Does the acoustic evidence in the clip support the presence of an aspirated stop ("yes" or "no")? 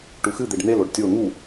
no